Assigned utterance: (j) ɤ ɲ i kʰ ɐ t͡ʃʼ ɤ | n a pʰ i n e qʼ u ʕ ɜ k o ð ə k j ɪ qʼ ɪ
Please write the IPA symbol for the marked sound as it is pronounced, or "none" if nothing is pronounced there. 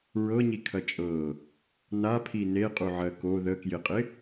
ɹ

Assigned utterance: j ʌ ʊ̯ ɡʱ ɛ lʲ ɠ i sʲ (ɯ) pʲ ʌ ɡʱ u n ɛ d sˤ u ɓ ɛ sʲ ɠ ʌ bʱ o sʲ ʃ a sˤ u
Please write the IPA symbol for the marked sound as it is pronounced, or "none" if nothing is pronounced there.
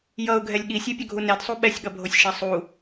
u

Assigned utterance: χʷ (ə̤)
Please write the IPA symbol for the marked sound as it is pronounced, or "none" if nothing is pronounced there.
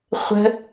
ə̤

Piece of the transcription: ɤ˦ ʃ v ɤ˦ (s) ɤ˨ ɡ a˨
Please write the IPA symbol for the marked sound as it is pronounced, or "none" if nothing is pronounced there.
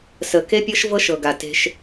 ʃ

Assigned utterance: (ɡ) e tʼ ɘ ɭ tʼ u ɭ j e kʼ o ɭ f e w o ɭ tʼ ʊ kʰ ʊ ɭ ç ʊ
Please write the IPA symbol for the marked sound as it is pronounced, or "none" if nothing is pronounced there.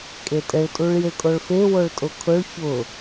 kʼ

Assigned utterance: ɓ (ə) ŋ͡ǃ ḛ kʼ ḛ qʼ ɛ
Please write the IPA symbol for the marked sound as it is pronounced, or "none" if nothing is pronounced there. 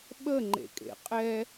ə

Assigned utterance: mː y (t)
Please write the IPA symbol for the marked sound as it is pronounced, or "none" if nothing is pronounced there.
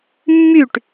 ʈ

